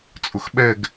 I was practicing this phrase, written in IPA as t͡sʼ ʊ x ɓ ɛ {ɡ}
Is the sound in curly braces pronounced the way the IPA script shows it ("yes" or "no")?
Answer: yes